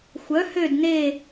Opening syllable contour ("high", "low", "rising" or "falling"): rising